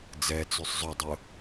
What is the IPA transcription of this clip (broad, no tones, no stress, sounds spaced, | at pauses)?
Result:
d͡z ɛ t͡s y sˤ zˤ ɵ dˤ ʊ